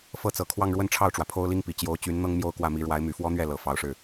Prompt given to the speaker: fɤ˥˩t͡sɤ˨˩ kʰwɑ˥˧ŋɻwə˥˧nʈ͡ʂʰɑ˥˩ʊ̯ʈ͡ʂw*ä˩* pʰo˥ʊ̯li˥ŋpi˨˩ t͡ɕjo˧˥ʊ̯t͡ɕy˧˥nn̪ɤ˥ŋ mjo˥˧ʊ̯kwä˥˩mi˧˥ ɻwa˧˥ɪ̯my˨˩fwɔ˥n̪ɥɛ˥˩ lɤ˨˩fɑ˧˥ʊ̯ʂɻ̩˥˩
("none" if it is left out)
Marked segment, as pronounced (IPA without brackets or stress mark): ä˩